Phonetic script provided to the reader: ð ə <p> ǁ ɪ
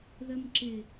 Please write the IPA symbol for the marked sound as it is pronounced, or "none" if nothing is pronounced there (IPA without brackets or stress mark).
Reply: m